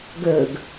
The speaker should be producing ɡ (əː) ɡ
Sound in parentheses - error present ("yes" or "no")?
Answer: no